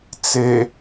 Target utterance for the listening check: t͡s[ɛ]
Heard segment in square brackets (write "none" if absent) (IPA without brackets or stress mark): e